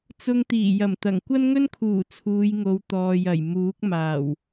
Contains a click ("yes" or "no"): no